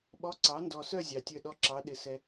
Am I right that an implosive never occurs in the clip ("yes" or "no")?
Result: no